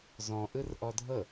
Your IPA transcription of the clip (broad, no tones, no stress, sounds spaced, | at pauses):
z ɔ̃ ʔ ɯ r ʔ ɔ dʱ ɤ